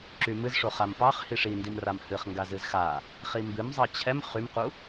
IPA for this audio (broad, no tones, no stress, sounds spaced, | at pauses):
ǁ y m ɨ z ʂ o χ a m p ɑ χ h i ʂ i n d i m r a m h ɨ χ ŋ ɡ a z ɨ z x a | χ i m b ɨ m zˤ ɑ t͡ɕʰ ɛ m χ y m q u